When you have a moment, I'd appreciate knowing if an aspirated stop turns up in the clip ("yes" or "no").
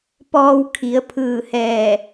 yes